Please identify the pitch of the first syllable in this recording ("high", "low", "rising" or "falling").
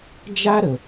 high